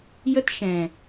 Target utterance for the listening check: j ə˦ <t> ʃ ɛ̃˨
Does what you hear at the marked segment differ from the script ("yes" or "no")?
no